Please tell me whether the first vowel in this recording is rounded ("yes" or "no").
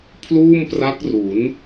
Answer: yes